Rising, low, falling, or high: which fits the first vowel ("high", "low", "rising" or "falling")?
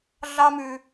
high